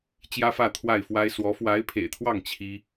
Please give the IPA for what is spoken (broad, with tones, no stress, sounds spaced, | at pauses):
t͡ɕ j ä˥ f ä˥˧ t̪ʰ w a˥˩ ɪ̯ f w a˥ ɪ̯ s w ɔ˧˥ f w a˧˥ ɪ̯ pʰ ḛ˨˩ ɪ̯ t̪ʰ w ɑ˥˩ ŋ t͡ɕʰ i˥